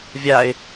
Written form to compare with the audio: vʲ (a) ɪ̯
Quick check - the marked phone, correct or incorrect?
correct